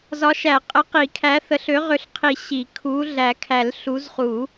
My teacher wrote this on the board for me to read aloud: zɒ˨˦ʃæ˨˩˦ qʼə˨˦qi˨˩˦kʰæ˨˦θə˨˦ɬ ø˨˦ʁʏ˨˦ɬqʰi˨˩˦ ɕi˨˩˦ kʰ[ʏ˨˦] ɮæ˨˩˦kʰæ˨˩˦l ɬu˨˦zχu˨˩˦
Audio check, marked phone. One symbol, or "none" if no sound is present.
u˨˦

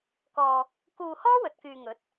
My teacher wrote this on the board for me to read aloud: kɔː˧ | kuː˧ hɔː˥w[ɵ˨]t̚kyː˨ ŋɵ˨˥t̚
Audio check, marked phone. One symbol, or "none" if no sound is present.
ɵ˨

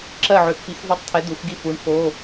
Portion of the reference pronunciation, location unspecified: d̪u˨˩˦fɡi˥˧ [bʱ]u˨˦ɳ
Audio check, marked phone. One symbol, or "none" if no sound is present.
f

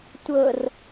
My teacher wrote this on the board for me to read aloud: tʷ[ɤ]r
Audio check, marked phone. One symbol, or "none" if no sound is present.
ɤ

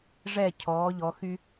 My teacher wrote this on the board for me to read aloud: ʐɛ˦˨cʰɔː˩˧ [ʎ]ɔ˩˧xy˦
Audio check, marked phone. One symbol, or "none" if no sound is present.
ʎ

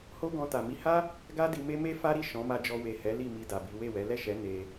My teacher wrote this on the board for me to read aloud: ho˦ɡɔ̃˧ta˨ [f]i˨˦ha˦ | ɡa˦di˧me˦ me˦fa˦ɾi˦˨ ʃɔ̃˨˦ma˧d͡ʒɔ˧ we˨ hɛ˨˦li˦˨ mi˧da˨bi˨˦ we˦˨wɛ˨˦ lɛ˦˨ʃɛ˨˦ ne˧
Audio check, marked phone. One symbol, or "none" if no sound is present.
m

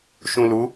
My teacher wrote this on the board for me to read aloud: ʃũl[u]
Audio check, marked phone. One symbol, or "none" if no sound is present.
u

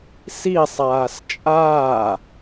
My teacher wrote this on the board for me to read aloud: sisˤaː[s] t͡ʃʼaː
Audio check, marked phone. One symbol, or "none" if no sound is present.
s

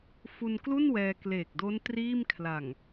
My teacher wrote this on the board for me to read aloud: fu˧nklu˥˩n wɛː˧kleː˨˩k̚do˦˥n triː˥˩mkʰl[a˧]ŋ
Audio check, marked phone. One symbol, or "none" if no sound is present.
a˨˩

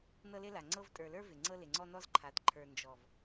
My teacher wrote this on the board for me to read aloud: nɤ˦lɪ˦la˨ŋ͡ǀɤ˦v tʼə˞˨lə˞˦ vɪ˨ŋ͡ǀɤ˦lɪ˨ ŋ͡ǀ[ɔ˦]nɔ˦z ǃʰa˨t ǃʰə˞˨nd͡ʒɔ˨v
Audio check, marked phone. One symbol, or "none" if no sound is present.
ɔ˦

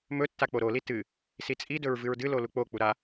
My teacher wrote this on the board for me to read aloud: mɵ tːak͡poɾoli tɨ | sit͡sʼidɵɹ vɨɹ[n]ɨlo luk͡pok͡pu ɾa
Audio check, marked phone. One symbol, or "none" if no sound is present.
d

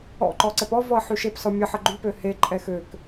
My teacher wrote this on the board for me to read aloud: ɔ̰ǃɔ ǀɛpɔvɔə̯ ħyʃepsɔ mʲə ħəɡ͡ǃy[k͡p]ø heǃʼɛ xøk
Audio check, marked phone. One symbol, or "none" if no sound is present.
p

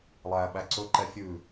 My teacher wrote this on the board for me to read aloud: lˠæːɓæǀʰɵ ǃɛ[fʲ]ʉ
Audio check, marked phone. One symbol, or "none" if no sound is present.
fʲ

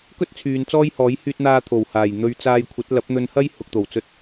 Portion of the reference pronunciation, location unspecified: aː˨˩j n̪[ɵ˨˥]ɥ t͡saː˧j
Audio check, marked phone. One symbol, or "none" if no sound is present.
ɵ˧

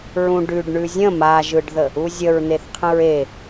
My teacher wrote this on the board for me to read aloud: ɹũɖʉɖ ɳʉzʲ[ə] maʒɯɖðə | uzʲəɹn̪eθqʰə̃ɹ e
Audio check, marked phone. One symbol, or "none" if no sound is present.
ə̃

